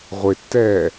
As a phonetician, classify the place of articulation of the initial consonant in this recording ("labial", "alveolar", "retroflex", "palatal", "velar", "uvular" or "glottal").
uvular